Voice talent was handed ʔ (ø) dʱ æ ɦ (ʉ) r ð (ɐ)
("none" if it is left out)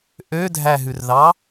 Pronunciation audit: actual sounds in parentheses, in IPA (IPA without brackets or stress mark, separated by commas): ø, ʉ, ɑ